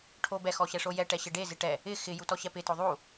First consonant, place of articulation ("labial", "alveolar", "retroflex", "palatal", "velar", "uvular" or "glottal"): retroflex